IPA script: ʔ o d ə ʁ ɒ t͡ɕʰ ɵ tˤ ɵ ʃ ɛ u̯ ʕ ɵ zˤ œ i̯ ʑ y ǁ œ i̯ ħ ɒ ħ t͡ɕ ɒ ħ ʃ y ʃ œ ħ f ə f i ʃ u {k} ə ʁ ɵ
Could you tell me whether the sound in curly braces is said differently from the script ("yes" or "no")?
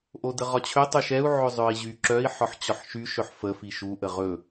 yes